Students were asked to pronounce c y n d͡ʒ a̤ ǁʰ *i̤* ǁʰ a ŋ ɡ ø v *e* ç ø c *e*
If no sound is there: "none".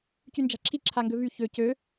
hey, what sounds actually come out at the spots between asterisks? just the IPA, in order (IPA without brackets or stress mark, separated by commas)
i, y, ø